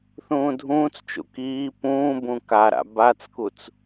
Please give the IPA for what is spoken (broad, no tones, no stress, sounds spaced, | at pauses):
θ ũː dʱ ũː t͡s t͡ʃ ṵ k iː p ũː b ũ k a ɾ a̰ b a t͡s k u t͡s